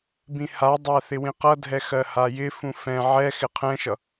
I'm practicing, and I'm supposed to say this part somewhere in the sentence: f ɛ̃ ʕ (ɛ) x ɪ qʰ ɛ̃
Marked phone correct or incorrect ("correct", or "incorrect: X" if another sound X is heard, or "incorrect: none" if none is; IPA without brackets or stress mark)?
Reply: correct